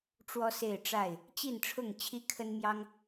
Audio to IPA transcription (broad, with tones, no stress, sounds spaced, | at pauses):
ʈ͡ʂ w ɔ˦ s e˥˨ ɪ̯ ʈ͡ʂ a˥˨ ɪ̯ | t͡ɕ i˥˨ n ʈ͡ʂʰ ʊ˥˨ ŋ t͡ɕʰ i˦ kʰ ə˦ n m j ɑ˦ ŋ